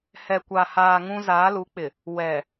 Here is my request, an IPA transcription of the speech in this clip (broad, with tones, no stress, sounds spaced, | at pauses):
h ɛ˨ kʷ a˨ h aː˨ ŋ ũ˦ z aː˨˦ l u˨˦ k͡p ɪ˨ | w ɛ˨